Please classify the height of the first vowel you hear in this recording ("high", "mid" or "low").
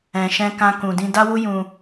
mid